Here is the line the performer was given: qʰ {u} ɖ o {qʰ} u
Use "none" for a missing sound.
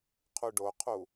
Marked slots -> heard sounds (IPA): u, qʰ

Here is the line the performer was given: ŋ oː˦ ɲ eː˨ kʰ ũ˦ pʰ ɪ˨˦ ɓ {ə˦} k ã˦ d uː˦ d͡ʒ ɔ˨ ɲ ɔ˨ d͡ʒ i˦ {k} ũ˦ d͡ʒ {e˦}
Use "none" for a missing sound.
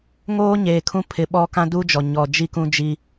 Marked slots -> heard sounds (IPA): ɔ˦, k, i˦

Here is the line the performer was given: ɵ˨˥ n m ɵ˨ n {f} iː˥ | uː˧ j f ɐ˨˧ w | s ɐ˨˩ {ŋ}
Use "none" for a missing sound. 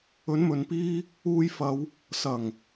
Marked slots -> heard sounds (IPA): p, ŋ

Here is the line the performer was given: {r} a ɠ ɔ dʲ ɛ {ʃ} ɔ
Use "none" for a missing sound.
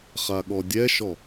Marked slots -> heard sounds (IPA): χ, ʃ

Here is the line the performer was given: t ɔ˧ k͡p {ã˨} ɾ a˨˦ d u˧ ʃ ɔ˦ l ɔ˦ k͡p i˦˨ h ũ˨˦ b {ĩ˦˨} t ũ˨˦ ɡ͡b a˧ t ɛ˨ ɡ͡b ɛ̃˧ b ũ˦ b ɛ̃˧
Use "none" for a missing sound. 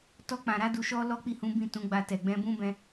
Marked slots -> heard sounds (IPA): ã˨, ĩ˦˨

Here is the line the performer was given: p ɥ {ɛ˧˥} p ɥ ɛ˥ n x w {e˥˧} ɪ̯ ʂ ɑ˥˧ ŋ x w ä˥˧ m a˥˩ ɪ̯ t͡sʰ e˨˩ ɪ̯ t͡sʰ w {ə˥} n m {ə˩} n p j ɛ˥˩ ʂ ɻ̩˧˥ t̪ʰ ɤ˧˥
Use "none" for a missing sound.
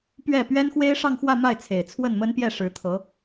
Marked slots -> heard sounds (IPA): ɛ˥˩, e˥, ə˥˩, ə˥

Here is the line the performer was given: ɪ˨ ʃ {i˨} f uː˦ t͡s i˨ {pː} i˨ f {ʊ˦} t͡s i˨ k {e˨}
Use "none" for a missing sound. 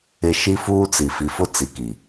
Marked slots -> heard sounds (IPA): i˦, f, ʊ˦, i˨

